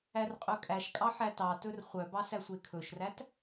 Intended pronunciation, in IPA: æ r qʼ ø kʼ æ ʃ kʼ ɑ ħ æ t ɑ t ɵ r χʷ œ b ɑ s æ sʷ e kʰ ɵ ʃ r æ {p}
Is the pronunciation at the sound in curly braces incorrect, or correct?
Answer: incorrect